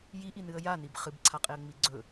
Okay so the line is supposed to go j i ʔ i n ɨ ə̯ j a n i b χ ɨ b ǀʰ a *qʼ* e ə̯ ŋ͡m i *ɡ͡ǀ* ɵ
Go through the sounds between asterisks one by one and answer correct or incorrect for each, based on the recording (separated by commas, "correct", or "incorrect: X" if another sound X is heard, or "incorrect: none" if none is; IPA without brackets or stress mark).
correct, correct